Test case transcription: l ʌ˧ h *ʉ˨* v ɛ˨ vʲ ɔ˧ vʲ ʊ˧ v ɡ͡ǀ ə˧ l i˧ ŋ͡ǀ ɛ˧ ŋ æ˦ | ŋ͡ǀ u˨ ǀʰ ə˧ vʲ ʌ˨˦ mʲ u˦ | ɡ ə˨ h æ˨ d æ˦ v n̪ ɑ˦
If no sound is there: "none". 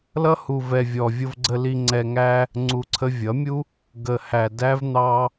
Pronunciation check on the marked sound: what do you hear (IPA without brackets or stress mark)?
u˨